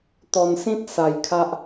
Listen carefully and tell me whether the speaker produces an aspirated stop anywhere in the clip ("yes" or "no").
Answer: yes